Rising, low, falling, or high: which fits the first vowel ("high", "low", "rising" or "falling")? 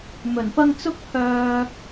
low